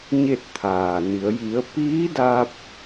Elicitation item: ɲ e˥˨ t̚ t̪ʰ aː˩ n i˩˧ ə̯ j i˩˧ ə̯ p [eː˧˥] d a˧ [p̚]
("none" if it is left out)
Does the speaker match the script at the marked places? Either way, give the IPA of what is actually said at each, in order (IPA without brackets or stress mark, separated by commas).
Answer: iː˧˥, p̚